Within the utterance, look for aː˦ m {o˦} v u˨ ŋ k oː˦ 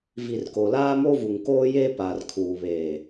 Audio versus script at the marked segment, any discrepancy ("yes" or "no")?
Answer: no